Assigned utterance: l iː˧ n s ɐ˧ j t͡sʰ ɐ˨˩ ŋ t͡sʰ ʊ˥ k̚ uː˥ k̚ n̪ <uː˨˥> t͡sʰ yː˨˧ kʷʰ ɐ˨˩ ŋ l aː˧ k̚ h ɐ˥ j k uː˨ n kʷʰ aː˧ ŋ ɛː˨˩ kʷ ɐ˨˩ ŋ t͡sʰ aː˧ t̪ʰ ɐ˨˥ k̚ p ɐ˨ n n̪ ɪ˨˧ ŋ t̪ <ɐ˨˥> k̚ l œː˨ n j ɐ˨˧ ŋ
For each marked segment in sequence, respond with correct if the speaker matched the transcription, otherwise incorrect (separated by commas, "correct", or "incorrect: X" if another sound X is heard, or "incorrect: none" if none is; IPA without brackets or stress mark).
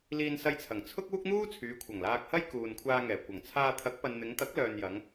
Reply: incorrect: uː˥, correct